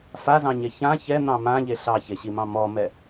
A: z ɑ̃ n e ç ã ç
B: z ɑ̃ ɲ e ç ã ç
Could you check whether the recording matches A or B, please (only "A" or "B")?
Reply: B